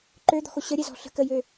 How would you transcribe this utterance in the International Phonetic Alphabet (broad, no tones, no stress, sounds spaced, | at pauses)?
ǃ ø d̪ ɔ̤ x o ɕ ə ɾʲ ɛ z ɔ̤ ɬ ə̤ k ə j ø